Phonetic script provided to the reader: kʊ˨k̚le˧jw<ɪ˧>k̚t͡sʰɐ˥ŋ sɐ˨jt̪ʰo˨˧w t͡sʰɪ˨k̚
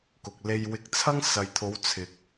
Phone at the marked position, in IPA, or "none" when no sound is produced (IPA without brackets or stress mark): ɪ˧